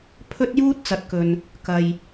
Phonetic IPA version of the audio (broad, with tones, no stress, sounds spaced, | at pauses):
pʰ ɵ˥ t̚ j uː˥ t̚ t͡s ɐ˨˥ t̚ k ɵ˨ n | k ɐ˨ j